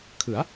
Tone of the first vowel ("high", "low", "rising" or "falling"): rising